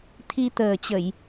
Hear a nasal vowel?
no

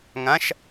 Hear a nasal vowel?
yes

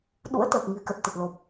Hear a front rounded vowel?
no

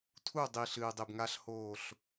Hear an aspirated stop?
yes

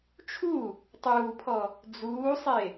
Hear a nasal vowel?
no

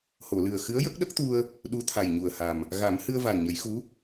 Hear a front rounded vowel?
no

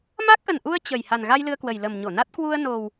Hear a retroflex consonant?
no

